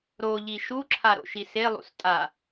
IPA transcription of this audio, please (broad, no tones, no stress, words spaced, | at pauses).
ɾoʎi ʃuǁʰa ɾo̰ʃiselˠṵs tʼa